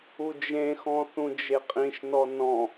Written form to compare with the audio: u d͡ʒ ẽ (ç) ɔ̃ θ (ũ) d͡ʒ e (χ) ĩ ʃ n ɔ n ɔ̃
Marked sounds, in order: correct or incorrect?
incorrect: x, correct, incorrect: qʼ

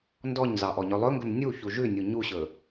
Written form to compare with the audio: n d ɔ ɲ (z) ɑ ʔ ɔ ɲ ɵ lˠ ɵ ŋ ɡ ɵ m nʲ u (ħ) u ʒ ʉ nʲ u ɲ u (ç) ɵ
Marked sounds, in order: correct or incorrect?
correct, incorrect: ç, incorrect: ɕ

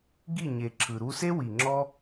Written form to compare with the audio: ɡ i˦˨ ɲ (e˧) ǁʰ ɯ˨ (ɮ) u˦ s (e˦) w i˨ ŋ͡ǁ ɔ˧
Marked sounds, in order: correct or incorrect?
incorrect: e˨, incorrect: ɾ, correct

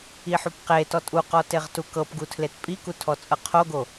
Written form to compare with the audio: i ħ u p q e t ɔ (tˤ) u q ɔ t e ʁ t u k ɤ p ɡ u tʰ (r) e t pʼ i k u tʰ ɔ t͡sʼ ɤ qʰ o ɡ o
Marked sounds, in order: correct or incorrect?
incorrect: tʼ, incorrect: l

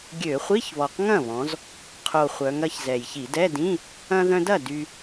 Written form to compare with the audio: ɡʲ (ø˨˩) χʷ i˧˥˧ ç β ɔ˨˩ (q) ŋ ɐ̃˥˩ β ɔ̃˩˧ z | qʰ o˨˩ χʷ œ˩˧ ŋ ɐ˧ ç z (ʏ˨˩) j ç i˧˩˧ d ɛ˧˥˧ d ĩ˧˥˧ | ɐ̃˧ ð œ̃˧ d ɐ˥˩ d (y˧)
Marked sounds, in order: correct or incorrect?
incorrect: ø˧˩˧, correct, incorrect: ɛ˨˩, correct

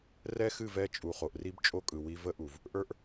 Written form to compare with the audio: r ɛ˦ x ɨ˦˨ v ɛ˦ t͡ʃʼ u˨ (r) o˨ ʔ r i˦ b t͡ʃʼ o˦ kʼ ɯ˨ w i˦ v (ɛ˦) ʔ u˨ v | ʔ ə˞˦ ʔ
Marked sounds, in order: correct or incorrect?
incorrect: χ, incorrect: ə˦

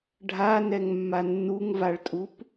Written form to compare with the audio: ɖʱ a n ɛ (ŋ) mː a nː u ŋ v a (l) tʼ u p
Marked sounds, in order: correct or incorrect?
correct, incorrect: ɭ

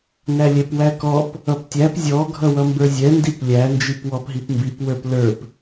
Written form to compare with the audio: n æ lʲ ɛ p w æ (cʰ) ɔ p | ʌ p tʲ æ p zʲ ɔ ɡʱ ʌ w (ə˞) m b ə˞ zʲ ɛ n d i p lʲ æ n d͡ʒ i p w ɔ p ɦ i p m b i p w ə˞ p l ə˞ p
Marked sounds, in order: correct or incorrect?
incorrect: k, incorrect: ʌ

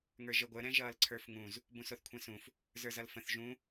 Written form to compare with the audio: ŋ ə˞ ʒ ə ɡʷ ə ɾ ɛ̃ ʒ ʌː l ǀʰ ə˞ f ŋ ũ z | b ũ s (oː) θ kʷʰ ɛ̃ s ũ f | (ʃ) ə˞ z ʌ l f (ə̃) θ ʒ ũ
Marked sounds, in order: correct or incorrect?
incorrect: o, incorrect: z, correct

